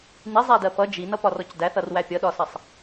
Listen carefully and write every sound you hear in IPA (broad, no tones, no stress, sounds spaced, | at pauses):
n i zˤ æ d ɜ p ʌ d͡ʒ i n ʌ p ɒ r ɔ c d æ θ ʌ r w æ pʲ ʌ ɗ ɒ s ʌ sˤ